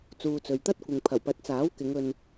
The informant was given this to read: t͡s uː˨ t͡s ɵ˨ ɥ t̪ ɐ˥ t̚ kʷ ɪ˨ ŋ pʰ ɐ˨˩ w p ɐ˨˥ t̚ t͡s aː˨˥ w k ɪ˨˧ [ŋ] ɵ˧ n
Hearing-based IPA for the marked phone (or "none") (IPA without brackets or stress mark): ŋ